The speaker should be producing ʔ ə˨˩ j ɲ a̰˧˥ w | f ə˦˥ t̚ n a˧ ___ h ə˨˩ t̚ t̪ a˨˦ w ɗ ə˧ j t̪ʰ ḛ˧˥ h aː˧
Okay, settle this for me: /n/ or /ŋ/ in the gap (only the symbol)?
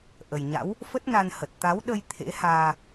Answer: n